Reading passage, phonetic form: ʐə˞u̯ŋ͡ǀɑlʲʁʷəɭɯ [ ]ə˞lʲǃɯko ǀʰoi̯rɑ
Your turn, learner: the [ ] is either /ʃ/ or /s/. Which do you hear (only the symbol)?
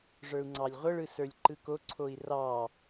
s